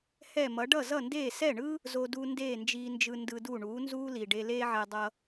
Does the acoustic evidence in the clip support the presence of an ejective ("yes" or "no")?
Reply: no